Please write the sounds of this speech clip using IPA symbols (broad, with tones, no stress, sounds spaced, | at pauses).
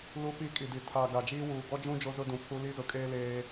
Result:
l u˦ p i˦ kʼ i˨ d i˨ tʰ a˨ ɡ a˨ d͡ʒ iː˦ w uː˨ ɡ ɔ˦ d͡ʒ ũ˦ d͡ʒ o˦ z ʊ˦ d ũ˨ pʰ u˦ l i˦ z ʊ˨ kʼ eː˦ l eː˦